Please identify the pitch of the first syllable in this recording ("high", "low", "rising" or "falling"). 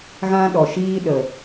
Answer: high